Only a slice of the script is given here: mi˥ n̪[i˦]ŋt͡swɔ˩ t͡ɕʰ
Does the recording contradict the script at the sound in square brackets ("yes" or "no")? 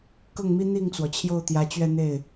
yes